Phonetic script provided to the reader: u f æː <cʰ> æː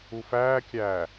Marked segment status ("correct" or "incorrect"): incorrect